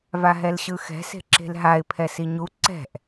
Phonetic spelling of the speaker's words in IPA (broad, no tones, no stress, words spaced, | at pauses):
vaɦɛlɕɯxɛ̤ se̤ǁe̤lɦaɪ̯ pʰɛsiɲu ǀɛ̤ʔ